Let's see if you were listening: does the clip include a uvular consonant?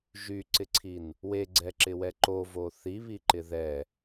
no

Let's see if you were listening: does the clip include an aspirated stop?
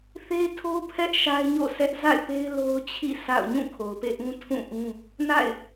yes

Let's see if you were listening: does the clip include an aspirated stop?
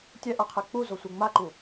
yes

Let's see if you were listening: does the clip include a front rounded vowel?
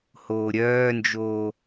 yes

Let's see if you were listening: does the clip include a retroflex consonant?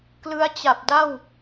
no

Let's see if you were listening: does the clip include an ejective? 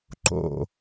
no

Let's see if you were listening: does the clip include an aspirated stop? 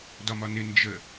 no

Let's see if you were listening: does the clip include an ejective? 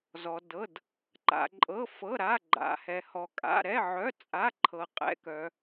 yes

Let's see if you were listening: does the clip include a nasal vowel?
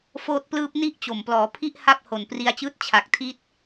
no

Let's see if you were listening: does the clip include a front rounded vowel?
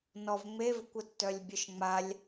yes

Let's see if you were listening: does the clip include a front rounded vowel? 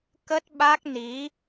no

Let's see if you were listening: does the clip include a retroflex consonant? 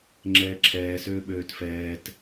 no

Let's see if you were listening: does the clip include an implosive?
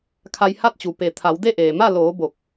no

